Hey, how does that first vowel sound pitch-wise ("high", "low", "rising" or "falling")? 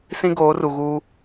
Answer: high